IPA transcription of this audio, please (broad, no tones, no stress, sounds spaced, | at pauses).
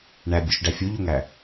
ɳ æ bʲ o ʃ ɖ æ fʲ o ʎ o ŋ æ